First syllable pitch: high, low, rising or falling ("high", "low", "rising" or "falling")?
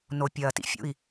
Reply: low